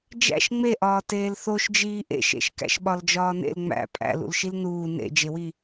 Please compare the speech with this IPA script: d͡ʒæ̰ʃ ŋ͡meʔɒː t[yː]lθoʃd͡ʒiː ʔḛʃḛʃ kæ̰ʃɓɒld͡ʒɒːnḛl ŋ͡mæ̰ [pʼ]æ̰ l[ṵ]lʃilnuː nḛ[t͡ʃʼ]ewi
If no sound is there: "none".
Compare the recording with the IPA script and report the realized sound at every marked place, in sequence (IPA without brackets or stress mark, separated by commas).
eː, pʼ, ṵ, d͡ʒ